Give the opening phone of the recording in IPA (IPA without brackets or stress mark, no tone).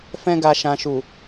f